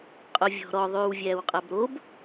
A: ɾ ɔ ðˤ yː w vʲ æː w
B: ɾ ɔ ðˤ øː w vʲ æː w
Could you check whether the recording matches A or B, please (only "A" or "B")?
A